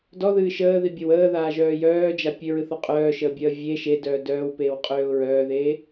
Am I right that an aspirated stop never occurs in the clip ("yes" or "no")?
yes